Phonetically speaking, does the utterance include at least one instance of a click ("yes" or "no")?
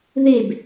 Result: no